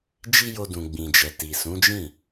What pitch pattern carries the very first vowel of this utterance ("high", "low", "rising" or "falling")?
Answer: high